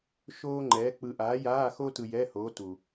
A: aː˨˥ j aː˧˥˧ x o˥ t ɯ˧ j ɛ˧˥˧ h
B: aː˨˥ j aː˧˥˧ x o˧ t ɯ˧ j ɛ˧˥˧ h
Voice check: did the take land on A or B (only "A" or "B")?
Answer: A